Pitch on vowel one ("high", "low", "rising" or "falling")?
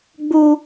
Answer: high